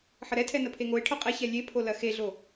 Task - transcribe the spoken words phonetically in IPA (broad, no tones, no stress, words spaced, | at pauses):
ħəɾɛtʰɛ nəpʰeŋoɪ̯ʈʰœ qʼɛ çɛlʲepʰo lɐxeɮo